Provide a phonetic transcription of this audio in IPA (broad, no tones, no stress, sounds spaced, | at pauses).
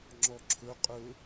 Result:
ŋ͡ǁ ɔ ǁʰ ɵ qʼ ɵ